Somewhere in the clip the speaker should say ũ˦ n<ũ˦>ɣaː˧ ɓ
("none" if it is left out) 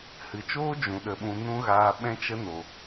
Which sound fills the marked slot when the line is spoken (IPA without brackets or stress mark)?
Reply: ũ˦